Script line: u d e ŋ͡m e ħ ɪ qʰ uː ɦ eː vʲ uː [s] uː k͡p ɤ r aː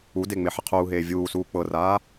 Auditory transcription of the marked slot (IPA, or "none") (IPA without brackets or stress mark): s